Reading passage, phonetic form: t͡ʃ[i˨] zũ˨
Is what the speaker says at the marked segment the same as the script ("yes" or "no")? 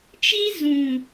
no